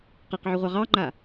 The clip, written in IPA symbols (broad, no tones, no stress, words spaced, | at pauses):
qeqʕoʁʷɑ ʁɑŋ͡ǃa